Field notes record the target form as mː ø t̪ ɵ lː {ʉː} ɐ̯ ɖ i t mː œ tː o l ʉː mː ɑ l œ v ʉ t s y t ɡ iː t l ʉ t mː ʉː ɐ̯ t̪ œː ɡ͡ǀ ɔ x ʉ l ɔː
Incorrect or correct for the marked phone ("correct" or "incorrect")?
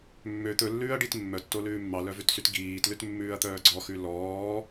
correct